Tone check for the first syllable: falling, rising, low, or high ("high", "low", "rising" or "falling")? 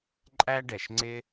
high